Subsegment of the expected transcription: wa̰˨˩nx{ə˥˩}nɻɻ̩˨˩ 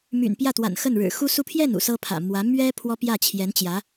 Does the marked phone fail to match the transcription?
no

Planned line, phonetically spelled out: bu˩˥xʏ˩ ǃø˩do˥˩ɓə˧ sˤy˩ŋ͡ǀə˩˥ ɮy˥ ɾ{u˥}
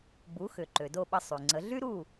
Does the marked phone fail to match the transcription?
yes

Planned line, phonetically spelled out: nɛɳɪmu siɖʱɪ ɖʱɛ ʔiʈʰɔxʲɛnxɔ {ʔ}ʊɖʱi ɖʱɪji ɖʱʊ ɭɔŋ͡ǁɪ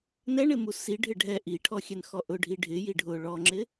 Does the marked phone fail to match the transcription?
no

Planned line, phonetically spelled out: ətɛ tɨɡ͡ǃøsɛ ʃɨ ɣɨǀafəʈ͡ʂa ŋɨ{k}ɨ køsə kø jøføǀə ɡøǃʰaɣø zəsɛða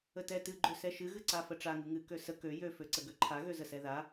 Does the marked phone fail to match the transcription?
yes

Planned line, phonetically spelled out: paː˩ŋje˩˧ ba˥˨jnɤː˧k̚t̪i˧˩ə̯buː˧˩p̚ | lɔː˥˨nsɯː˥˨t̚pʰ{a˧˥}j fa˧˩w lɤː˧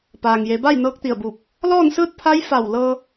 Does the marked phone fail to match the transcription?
no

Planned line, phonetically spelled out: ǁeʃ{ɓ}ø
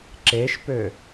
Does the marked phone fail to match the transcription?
yes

